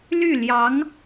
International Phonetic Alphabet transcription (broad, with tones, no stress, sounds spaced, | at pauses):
l y˥˩ l j ɑ˧˥ ŋ